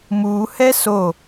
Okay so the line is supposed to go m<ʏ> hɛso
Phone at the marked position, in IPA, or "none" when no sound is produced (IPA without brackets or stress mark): u